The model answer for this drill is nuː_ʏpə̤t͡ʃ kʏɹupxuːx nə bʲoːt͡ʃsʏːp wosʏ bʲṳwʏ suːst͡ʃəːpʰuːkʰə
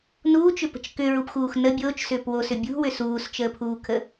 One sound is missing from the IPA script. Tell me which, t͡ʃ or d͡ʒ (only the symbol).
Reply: t͡ʃ